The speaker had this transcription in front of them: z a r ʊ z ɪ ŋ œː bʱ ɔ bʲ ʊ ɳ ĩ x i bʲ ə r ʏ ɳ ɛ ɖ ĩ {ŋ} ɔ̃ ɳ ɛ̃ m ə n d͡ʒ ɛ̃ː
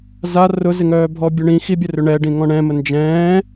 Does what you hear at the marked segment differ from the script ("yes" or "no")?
no